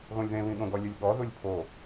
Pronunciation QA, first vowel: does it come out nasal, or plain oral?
nasal